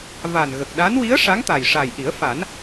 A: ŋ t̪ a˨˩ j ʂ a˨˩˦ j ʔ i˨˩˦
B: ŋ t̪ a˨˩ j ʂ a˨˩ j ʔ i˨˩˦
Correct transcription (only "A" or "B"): B